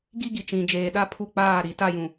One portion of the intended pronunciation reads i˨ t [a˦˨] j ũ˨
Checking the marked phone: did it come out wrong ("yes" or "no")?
no